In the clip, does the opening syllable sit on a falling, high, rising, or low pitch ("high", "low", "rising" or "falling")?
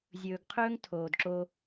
low